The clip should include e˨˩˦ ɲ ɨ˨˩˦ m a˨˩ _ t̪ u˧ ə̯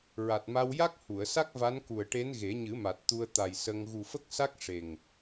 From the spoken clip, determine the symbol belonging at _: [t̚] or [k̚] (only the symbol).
t̚